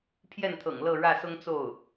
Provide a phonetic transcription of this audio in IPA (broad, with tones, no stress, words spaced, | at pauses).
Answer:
pʰjɛ˥˩nt̪ʰɤ̰˨˩ŋ lɤ˥˧ɻä˥˩sʊ˥ŋ t͡so˥˩ʊ̯